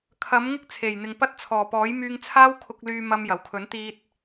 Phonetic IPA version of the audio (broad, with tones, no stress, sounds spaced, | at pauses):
kʰ ɐ˨˥ m ŋ ɪ˥ k̚ t͡sʰ e˨˩ j n̪ ɪ˨ ŋ p ɐ˥ t̚ t͡sʰ ɔː˨˩ p ɔː˨˥ j m yː˧ ŋ t͡sʰ aː˥ w kʰ ʊ˧ k̚ l yː˧ m ɐ˧ m j ɐ˨˩ w kʰ ɵ˨˥ n t̪ iː˧ t̚